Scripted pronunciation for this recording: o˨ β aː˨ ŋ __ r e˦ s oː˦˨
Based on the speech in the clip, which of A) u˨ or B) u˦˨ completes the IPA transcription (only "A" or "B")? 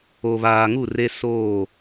B